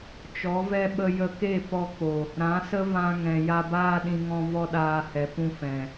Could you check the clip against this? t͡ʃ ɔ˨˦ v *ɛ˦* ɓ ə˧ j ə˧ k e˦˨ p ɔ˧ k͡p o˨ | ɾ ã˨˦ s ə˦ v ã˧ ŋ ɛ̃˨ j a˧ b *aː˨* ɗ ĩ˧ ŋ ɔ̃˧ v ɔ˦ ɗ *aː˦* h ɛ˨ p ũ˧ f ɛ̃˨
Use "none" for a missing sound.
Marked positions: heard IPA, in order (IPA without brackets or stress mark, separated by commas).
ɛ˦, aː˦, aː˧